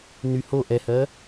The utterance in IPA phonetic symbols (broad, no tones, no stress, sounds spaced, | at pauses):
n y h o ʔ ɛ h ɜ